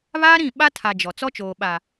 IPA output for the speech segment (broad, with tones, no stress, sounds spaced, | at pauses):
β aː˦ ɾ ĩ˦˨ ɓ a˦ tʰ a˨ d͡ʒ ɔ˨ t͡s ɔ˦ t͡ʃ oː˨ ɓ a˨